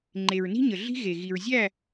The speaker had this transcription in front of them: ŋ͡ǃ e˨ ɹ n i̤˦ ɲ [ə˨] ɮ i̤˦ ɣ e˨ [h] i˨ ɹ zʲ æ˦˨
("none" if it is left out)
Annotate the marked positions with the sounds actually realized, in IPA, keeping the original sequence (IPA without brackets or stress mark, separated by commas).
ə˨, ɣ